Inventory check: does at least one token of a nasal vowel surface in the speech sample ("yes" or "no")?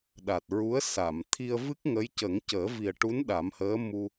no